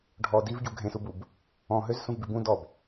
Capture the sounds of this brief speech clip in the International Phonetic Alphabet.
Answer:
ɖʱ ɔ d i v ɟ u ɡʱ ẽ s u b u b | ɔ̃ ɦ ø z s ũ v b i b ũ d ɔ b

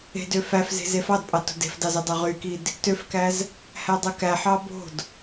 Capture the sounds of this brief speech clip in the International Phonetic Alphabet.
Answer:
e̤ d ø f æ f z e̤ z e f ɑ d pʼ ɑ t o̤ d e̤ f d ɑ z i dˤ ø ʁ y k i d | t ø f k æ z | h æ dˤ ɯ k æ ħ ɑ b o̤ d

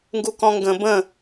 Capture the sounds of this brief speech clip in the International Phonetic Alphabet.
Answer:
ŋ ɡ u k ɔ̃ ŋ ɡ ə̃ b ə̃

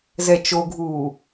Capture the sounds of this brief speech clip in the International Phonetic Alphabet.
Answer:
z ɛ t͡ʃ o ɡʱ uː

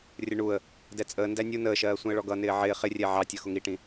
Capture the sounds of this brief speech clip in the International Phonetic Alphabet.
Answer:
rʲ ə ɳ u ə̯ | d ɛ t͡sʼ əː n d æ nʲ u n əː ʃ ɜː sʷ ĩ ə̯ ɭ ɔ ɡ ʌ n ɪː ʕ ɪː χ ɪ rʲ ɛ ʕ ɑ tʲ ʌ x ʊ ŋ i ʈ ĩ

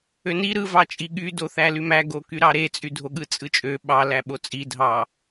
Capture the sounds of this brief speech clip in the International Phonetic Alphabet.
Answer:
ø n i ɾ ɯ v ɑ t͡ʃʼ i ɠ y d o θ æ l y m æ ɡ o k y ɾ ɑ ɾ e t͡sʼ y dʱ o ɠ ɯ t͡sʼ ɯ t͡ʃʼ ø ɓ ɑ l æ ɓ o t͡sʼ i dʱ ɑ

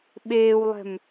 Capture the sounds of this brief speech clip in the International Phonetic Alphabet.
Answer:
ɓ eː w lˠ ɛ̤ m

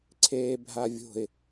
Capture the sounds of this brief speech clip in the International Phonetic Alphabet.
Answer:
ǀʰ eː bʱ a vʲ o̤ ɪ̯

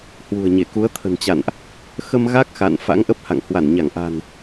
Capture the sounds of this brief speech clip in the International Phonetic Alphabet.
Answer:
h w ṳ˨˩ ə̯ ɲ e˧˩ k u˨˦ ə̯ t̪ʰ ə̤˨˩ n t͡ɕ a̰˧˨ n ʔ | x ə˧ m ɣ a˦˥ k̚ x a̰˧˨ n f a̰˧˥ ŋ ʔ ə˦˥ p̚ h a̰˧˨ ŋ h w a˧˩ n ɲ a˧˩ ŋ ʔ a̤˨˩ n

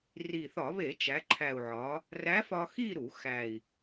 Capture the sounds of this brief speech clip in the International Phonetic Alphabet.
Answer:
r i˨˩ θ ɒ˧˩˧ β e˧˩˧ t͡ʃ æ˩˧ ǃʰ æ˨˩ u̯ ʕ ɒ˩˧ | r æ˧˥ f ɒ˧ x i˥˧ ɾ u˧˩˧ x æ˨˩ i̯

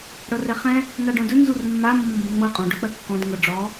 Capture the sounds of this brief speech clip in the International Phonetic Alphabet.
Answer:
ɽ ɤ r ɛ χ ɛ̃ | n a ɖ ɔ̃ d ɵ n z u r mː a mː ɔ̃ m b ə̃ ŋ͡m ɤ qʼ ɔ̃ ɖ ɵ k͡p ɜ kː ɔ̃ d ŋ ɤ ɖ͡ʐ ɔ

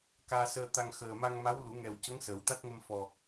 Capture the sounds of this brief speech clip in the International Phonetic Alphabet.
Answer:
k aː˧ s əː˧ t̪ a˧ ŋ x əː˨˩ m a˧ ŋ m a˧˥ w l u˨˩˦ ŋ ɛ˨˩ w c ə˧˥ ŋ s ə˨˩˦ w t̪ a˦˥ t̚ ŋ ə˧ m f ɔ˨˩

